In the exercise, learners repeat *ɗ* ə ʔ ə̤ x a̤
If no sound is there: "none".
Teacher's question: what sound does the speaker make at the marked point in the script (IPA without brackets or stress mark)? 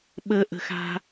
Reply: ɓ